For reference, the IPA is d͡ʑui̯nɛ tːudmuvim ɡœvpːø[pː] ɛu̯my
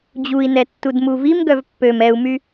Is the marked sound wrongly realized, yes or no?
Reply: yes